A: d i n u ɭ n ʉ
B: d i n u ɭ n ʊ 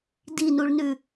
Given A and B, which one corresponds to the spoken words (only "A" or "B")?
A